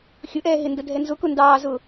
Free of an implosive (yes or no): yes